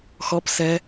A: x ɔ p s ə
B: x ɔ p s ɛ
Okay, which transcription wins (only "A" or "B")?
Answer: B